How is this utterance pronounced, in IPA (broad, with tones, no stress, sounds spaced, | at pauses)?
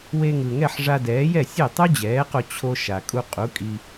w e˧ ŋ ɯ˩ ŋ ɛ˥˩ ħ ʐ a˧ d ɛː˩˥ j ɛ˥˩ sʲ e˥˩ tˤ u˥ d͡ʑ ɛː˩˥ q o˧ t͡ɕʰ o˧ ʃ a˩ kʼ u˧ qʼ u˩˥ kʼ i˧